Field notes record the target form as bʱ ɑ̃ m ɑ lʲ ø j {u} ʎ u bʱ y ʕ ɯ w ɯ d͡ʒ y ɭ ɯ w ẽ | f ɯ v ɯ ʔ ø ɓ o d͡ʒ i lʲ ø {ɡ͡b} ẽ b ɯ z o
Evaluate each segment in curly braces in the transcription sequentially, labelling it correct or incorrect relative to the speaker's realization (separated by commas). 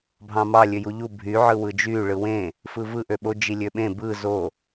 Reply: correct, incorrect